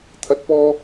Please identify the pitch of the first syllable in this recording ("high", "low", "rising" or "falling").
rising